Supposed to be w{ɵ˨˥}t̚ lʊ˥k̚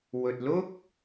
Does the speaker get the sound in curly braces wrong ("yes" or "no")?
yes